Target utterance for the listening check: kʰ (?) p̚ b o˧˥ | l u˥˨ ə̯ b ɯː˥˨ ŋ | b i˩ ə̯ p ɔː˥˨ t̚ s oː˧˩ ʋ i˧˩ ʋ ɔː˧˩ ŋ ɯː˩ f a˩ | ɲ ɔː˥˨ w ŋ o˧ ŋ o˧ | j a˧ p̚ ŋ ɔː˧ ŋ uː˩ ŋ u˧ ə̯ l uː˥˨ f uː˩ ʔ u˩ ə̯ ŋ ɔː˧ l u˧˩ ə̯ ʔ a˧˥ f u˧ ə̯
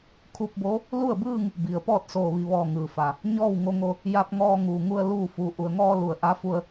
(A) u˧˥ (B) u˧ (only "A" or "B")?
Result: B